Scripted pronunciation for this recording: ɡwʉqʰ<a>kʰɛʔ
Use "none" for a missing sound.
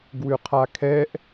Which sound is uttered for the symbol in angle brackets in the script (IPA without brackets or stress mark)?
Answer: a